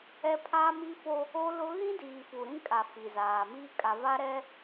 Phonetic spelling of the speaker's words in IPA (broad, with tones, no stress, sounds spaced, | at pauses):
ɛ˦ pʰ aː˦ m i˦ f o˦ | o˦ l ʊ˦ ɣ ĩ˦ d iː˨ f u˨ ɾ ĩ˦ kʼ a˨ f i˨ z aː˨ m iː˦ kʼ a˨ v a˦ ɾ ɛ˦